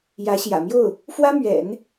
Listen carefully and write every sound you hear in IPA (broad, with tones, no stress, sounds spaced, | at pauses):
j ä˧˥ ɕ j ä̰˨˩ m j o˥˩ ʊ̯ | f w ä˥ m ɥ ɛ̰˨˩˦ n